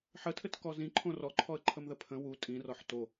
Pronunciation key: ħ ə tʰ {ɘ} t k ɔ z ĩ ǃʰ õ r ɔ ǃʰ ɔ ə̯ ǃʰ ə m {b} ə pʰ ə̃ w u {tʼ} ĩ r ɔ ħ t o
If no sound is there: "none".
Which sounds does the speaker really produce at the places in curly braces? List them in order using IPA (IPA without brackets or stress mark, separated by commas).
ɘ, ð, tʼ